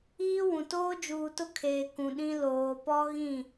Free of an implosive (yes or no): no